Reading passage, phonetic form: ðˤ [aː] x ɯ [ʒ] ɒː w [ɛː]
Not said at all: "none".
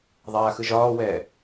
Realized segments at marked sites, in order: aː, ʒ, ɛː

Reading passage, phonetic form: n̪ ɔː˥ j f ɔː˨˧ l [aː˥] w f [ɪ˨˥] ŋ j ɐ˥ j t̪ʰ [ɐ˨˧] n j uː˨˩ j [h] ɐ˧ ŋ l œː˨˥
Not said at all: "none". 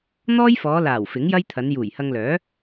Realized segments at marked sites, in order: aː˨˩, ɪ˨˥, ɐ˨˧, h

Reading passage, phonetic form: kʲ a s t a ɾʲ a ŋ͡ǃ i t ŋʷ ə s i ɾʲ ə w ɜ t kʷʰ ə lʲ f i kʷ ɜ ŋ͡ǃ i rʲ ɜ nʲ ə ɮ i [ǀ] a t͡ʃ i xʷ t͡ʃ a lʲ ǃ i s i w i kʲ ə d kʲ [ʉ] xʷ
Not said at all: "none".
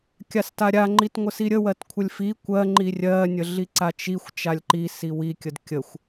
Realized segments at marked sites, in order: ǀ, ə

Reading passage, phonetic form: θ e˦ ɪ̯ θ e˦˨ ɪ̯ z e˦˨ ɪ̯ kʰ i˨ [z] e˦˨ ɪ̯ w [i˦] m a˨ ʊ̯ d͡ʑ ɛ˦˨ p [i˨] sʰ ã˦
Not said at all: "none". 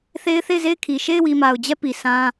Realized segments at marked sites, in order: ʃ, i˨, i˨

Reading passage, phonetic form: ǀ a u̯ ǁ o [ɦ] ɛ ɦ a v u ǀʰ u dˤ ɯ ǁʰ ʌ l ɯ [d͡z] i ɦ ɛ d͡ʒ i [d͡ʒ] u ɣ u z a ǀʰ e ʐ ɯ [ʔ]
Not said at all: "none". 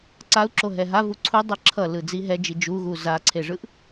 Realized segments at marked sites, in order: ɦ, d͡z, d͡ʒ, ʔ

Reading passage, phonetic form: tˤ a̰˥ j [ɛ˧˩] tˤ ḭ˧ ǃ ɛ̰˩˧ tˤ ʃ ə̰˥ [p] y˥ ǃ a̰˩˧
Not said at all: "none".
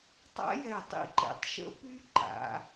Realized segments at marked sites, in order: ɛ˧˩, p

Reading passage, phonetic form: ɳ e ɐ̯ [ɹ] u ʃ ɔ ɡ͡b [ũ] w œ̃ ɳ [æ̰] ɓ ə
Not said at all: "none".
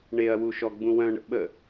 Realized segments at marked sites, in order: w, ũ, ə̰

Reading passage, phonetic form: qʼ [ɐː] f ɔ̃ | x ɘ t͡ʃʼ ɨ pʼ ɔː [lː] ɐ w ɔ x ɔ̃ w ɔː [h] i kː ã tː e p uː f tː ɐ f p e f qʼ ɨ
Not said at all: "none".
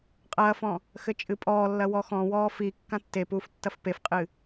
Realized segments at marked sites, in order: ɐː, lː, f

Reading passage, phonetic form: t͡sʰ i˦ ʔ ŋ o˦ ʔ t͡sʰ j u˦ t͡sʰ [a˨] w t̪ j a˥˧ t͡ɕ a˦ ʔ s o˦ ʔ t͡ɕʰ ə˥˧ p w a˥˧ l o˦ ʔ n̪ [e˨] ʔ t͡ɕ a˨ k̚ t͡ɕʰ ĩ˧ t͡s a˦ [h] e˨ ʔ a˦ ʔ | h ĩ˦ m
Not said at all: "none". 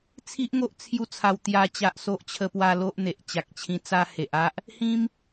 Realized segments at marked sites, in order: a˧, e˨, h

